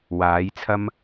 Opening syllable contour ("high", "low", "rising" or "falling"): rising